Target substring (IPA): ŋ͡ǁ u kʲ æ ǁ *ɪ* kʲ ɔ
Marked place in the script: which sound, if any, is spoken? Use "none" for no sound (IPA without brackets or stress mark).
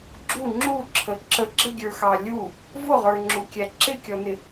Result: ɪ